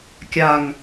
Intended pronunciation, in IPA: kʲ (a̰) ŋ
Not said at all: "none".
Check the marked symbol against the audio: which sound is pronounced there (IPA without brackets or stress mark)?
a